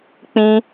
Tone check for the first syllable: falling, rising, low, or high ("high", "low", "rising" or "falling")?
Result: high